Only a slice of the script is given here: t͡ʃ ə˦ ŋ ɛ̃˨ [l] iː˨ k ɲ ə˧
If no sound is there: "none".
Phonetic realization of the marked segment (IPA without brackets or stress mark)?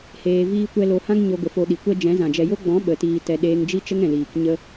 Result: l